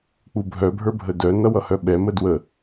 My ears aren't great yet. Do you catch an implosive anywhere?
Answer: yes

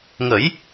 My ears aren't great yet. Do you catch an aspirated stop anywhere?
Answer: no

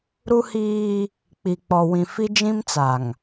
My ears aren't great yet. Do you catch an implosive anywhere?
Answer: no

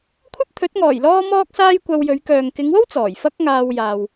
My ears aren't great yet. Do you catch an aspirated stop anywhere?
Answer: yes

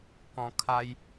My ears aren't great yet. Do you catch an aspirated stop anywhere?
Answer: yes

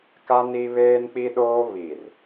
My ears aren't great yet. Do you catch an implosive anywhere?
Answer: yes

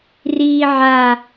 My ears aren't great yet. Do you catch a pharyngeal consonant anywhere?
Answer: yes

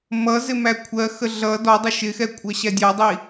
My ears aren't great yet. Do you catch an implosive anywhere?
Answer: no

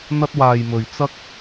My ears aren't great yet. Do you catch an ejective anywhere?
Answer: no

